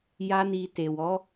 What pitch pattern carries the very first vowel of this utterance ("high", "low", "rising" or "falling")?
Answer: high